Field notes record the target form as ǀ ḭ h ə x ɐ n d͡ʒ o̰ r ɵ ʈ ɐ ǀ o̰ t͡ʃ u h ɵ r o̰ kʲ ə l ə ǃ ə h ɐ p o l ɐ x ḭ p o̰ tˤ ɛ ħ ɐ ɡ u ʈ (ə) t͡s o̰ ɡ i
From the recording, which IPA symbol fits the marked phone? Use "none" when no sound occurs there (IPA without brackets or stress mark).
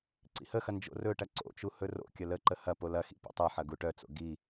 œ